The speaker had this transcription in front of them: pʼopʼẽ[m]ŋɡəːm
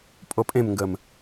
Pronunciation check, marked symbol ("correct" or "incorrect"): correct